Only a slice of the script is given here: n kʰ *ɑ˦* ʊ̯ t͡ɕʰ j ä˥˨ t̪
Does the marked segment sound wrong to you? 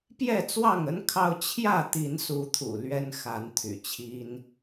no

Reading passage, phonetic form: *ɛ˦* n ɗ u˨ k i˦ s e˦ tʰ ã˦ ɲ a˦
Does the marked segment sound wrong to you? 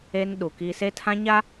yes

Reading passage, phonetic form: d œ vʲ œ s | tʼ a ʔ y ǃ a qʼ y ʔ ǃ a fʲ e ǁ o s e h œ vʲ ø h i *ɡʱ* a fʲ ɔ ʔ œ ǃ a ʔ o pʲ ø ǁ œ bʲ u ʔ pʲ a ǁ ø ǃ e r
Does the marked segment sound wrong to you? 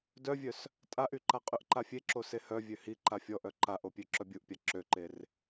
yes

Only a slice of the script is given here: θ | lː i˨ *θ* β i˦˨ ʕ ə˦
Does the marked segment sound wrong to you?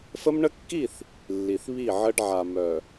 no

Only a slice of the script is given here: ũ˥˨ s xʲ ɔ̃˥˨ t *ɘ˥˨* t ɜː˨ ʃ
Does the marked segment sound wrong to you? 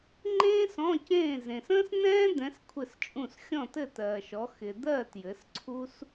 no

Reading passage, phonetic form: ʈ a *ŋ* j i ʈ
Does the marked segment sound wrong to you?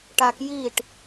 yes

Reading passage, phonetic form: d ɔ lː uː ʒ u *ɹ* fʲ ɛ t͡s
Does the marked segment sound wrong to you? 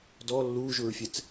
no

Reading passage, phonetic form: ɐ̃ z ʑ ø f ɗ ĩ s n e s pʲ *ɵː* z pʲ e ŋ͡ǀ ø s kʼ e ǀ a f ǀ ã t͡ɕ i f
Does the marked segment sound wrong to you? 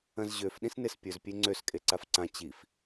yes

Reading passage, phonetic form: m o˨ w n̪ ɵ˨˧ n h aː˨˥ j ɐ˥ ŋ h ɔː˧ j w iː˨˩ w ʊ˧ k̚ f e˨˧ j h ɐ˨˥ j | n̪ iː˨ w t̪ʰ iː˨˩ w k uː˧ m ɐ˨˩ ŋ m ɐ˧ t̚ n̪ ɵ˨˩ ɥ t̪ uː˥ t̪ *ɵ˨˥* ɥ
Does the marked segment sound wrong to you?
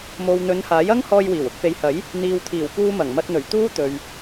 yes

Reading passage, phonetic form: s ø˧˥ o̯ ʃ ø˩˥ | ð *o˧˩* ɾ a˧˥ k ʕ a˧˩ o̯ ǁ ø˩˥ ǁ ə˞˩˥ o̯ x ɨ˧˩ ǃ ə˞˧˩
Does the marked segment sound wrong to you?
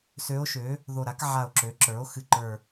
no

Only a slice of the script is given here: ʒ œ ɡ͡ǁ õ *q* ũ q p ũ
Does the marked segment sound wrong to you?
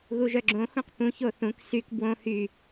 yes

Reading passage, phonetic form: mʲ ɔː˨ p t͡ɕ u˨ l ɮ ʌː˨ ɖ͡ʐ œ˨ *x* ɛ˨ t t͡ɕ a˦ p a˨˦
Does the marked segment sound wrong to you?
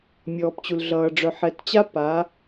yes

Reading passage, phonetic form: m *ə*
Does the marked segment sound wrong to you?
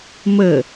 no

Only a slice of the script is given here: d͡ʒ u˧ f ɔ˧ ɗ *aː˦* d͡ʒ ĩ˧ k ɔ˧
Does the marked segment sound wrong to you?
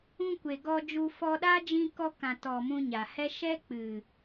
no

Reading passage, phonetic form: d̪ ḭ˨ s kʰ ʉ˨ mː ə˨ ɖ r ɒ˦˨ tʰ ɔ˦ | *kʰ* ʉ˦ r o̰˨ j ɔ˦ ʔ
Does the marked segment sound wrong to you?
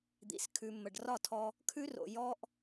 no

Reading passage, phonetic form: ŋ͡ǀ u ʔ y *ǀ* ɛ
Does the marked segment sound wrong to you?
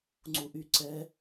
no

